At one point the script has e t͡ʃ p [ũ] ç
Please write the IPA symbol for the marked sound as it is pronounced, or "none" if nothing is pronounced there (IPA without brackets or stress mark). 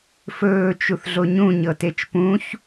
ũ